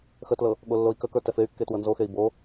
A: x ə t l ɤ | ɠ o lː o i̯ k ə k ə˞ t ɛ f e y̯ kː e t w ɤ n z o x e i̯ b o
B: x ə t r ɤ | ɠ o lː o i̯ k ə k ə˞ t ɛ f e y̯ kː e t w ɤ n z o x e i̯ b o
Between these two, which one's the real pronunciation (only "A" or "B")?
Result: A